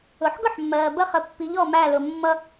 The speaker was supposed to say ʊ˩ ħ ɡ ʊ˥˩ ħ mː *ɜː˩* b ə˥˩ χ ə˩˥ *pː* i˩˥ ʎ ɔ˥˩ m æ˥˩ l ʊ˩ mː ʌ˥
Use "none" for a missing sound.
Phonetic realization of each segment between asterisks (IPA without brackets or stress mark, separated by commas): ɜː˩, pː